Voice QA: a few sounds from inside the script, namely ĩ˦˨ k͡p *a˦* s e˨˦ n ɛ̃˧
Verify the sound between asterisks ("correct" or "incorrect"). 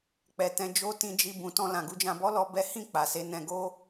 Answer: incorrect